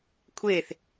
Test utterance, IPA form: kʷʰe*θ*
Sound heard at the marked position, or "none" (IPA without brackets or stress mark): θ